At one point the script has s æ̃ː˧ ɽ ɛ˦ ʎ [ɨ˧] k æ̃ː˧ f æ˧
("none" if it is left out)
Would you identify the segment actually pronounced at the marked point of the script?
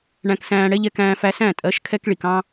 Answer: ɛ˧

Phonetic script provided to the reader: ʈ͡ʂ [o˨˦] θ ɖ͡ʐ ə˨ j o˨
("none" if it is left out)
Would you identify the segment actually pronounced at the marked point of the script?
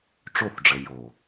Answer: o˦˨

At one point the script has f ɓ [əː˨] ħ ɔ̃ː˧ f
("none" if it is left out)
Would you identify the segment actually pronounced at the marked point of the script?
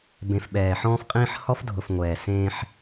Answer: ɛː˨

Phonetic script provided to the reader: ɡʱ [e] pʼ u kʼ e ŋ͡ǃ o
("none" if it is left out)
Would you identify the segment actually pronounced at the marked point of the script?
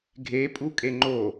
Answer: e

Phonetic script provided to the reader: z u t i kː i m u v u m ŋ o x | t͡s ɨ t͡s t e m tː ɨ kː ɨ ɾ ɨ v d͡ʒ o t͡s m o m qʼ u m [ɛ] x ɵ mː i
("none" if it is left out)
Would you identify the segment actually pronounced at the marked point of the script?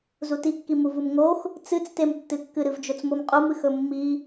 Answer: ɨ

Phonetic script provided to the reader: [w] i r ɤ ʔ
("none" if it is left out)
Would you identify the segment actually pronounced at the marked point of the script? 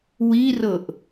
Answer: w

